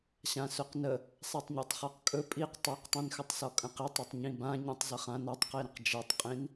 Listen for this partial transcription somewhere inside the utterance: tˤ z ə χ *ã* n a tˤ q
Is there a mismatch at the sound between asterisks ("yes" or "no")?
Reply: no